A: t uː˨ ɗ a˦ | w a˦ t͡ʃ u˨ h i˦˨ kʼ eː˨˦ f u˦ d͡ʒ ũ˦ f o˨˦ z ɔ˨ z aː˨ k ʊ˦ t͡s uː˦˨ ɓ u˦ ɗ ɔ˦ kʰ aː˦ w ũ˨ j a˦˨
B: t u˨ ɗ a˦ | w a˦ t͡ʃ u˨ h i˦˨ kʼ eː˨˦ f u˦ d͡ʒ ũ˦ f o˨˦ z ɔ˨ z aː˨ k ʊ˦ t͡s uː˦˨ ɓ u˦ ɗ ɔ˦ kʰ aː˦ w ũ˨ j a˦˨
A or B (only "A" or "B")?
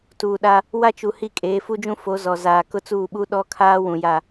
A